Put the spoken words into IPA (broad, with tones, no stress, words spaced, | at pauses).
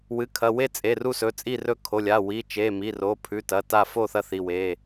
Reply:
wɨ˩˧˩kʰɐ˩˧˩we˥˨t͡sʼe˩˧˩ ru˥˨sɵ˩˧˩t͡sʼi˥˨rɵ˥˨ kʰo˩˧˩lʲa˩˧˩ wi˩˧˩t͡ʃe˩˧˩mi˩˧˩ro˩˧˩ pʰʉ˩˧˩tɐ˩˧˩ ta˥˨ fo˥˨ θɐ˥˨θi˩˧˩we˩˧˩